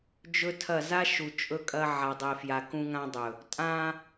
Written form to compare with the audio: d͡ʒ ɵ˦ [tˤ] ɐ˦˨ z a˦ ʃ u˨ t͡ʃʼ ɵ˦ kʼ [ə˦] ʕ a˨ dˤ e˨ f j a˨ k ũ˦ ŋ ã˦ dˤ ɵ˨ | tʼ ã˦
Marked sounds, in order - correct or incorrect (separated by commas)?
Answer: incorrect, incorrect